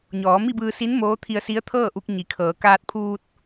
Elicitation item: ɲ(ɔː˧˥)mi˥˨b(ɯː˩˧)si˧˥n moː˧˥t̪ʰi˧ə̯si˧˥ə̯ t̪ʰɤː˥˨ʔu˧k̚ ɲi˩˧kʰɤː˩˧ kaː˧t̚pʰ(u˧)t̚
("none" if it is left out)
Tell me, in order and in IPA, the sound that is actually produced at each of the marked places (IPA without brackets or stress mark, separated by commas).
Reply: ɔː˩˧, ɯː˧, uː˧